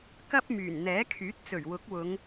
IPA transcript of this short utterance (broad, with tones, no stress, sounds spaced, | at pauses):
k ɐ˥ p̚ m yː˨˩ n n̪ ɛː˨˥ kʰ yː˨˥ t̚ t͡s ɵ˨˩ ɥ w ʊ˨˥ k̚ w ʊ˨˧ ŋ